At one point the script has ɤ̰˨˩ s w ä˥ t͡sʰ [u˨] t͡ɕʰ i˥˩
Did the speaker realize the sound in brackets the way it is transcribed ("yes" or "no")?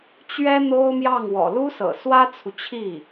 yes